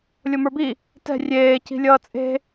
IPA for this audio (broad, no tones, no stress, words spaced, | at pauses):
lʲomə˞bi | tɛ̤ rʲeː ci̤lʲʌːt͡sʼe̤